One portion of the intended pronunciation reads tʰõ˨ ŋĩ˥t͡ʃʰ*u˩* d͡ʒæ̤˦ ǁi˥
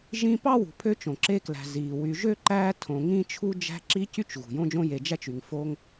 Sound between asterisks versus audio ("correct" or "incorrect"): incorrect